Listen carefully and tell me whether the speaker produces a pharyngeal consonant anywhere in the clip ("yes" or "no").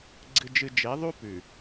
no